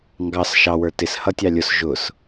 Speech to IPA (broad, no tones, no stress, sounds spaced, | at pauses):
ŋ ɡ ɑ s ʃ ɑ w ə˞ t ɪ s h ʌ tʲ ɑ lʲ ʊ s ʒ ʊ s